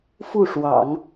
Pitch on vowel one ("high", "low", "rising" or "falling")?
falling